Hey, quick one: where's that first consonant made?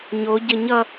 palate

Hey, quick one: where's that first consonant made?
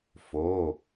lips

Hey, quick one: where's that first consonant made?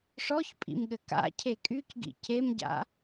retroflex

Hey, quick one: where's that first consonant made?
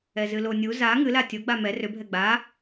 tongue tip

